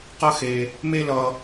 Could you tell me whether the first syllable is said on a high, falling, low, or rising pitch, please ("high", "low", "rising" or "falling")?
high